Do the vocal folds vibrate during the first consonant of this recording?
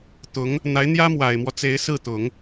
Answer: no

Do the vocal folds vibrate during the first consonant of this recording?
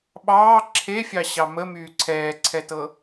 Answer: yes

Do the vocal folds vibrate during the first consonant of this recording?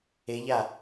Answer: yes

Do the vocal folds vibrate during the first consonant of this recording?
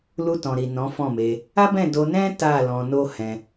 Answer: yes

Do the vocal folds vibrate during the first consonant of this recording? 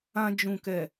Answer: yes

